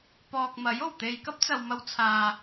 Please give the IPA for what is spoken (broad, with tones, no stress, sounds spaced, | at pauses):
p ɔː˨ k̚ m ɐ˨˥ j o˨˩ w t̪ e˨ j k ɐ˥ p̚ t͡s ɐ˨ w m ɐ˧ w t͡sʰ aː˨